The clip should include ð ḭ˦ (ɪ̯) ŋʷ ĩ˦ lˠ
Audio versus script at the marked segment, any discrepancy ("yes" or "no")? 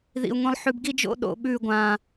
yes